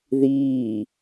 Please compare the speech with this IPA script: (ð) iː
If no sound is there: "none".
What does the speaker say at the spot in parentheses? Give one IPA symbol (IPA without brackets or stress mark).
ð